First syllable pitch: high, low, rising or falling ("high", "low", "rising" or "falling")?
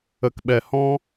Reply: low